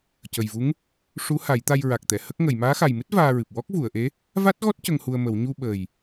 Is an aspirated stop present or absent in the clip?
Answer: absent